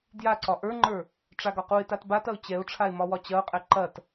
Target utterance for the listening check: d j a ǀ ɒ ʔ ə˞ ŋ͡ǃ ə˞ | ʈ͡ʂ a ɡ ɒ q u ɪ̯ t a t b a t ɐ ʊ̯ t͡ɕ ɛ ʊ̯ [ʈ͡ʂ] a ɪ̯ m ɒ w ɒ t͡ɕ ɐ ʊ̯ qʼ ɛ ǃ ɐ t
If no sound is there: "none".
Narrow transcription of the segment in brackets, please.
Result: ʈ͡ʂʰ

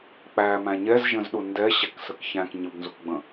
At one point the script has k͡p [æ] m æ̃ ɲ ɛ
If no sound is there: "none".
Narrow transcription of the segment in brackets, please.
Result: æ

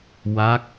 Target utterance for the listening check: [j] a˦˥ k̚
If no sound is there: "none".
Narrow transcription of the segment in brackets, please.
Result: w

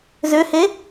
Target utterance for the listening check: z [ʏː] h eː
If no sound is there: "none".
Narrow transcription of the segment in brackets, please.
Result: ʏː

